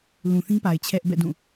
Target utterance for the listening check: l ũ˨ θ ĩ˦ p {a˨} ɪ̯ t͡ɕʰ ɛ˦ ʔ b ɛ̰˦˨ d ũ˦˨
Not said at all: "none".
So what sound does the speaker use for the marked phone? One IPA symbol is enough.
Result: a˨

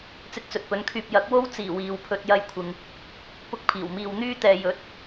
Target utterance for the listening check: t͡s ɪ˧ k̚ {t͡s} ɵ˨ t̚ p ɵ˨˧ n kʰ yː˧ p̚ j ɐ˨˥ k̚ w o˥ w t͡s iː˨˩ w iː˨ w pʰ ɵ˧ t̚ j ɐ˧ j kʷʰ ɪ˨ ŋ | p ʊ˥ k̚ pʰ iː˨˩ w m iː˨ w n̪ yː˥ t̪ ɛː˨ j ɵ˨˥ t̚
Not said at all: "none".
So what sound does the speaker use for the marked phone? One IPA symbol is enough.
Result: t͡s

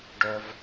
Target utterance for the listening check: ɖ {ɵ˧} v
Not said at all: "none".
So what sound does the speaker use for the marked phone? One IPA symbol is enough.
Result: œ˧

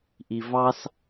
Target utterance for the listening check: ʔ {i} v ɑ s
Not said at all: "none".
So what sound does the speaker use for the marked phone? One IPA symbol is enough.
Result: i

